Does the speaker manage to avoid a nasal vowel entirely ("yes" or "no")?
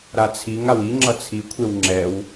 yes